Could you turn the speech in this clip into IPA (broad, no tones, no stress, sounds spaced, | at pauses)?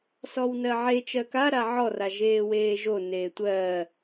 s ɔ w n ɜ ʕ e t͡ʃ ɜ k a ɾ a ʕ ɔ r a ʒ eː w eː ʒ o n eː tʷ ɜː